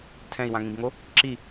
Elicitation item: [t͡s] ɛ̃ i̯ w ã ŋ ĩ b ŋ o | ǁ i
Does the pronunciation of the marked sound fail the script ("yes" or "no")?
yes